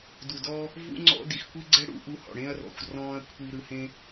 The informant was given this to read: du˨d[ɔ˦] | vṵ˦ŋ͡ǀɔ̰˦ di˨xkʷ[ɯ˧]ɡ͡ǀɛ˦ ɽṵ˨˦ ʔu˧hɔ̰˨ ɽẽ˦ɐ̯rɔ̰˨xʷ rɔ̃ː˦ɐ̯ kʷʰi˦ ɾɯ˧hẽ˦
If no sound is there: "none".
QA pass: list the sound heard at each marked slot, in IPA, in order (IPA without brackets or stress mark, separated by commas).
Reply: ɔ˦, ɯ˦